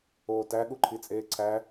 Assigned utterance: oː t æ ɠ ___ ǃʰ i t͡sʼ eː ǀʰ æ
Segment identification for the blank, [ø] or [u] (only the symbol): u